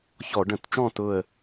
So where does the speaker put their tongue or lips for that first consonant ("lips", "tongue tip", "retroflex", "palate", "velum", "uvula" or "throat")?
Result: palate